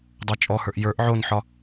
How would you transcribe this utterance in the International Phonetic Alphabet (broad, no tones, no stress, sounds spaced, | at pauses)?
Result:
dˤ ə˞ t͡ʃʼ ɔ h ə˞ ʔ j ə˞ ʔ ʕ o n ħ ɒ